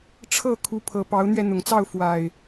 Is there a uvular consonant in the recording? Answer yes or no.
no